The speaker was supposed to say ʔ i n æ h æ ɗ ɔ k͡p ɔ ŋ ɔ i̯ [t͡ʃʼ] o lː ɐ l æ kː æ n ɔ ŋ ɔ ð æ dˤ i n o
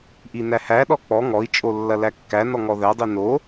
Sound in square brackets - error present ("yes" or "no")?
no